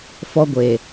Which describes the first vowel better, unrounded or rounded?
rounded